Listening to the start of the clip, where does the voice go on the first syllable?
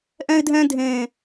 high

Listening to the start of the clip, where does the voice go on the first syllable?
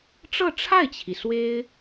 falling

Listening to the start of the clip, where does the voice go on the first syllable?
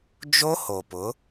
high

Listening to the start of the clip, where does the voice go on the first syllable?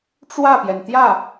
falling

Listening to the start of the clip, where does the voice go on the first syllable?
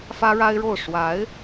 high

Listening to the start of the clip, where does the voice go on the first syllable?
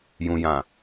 low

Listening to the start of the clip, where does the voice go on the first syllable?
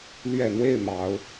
falling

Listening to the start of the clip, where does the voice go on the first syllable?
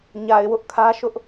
low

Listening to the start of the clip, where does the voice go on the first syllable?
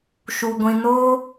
low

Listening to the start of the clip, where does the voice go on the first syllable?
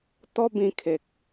high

